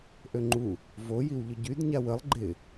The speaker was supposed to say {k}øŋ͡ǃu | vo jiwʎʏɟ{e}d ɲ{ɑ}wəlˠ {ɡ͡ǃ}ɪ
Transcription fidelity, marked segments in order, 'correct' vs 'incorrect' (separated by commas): incorrect, incorrect, incorrect, correct